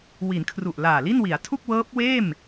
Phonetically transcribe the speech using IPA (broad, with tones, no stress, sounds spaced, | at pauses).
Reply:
w i˩˦ n kʰ r u˨˩ ʔ l aː˨˩ l i˥˩ n w i˩˦ a̯ tʰ u˥˩ k̚ w ɤː˦˥ p̚ w eː˥˩ m